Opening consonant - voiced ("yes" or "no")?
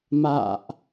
yes